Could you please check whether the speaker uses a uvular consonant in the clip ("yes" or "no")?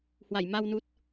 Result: no